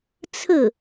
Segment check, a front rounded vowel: absent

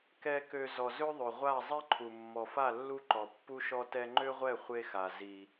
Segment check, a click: present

